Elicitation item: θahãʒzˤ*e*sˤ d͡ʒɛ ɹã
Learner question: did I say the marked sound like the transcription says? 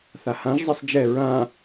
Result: yes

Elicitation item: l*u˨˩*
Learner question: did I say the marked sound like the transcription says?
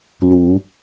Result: no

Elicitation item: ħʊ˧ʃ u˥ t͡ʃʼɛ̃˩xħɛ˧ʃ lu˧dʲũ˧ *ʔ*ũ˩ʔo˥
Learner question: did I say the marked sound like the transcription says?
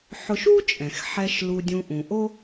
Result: yes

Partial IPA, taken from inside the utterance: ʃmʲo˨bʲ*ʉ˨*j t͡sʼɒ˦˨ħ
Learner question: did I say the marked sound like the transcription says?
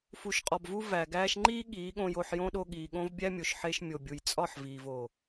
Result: no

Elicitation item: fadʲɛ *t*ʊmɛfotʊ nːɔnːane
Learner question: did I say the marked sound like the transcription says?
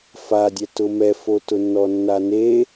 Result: yes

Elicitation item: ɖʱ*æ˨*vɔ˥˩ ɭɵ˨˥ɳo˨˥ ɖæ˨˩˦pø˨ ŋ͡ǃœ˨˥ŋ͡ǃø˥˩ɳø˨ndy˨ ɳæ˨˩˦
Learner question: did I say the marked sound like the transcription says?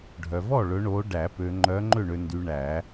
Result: no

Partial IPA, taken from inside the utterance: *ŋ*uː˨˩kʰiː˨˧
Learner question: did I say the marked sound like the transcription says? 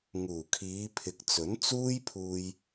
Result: yes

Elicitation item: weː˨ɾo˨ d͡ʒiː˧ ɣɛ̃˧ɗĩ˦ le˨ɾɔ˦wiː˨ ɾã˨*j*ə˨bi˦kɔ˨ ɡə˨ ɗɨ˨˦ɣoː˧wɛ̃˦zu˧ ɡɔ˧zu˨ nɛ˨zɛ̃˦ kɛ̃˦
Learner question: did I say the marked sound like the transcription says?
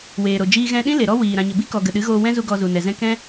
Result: no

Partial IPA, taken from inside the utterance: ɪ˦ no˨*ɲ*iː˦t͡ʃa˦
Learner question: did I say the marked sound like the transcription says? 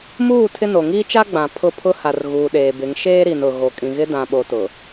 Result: no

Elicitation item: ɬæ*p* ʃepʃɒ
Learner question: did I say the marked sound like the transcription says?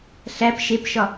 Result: yes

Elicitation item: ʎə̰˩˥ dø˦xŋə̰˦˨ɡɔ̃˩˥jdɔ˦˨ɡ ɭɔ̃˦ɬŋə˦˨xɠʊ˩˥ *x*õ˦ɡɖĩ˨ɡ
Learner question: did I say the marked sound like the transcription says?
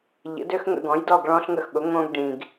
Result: no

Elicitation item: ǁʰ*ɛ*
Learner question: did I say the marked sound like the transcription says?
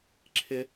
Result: no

